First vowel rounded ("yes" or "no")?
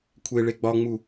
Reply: no